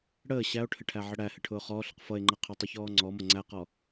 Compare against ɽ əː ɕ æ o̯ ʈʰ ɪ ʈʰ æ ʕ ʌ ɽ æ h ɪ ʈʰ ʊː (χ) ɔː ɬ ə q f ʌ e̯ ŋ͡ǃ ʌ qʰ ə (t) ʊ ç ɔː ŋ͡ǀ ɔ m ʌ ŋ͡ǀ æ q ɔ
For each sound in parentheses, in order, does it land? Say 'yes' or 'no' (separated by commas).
yes, no